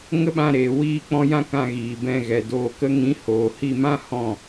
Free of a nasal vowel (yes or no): no